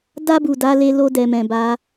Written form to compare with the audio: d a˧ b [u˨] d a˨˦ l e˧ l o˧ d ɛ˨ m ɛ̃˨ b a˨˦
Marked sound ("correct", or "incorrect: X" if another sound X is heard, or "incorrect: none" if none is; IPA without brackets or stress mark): correct